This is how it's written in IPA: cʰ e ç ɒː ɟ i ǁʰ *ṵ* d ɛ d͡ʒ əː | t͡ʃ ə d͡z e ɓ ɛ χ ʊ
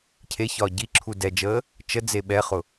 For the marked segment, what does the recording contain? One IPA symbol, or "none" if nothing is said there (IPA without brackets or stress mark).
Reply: u